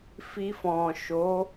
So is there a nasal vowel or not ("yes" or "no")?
yes